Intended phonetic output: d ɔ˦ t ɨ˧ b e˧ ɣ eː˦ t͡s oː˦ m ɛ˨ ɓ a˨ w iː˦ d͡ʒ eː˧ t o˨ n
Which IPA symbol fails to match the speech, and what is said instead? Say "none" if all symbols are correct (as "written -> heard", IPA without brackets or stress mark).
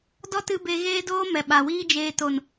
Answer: t͡s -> d